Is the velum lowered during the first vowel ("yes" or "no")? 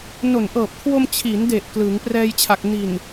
no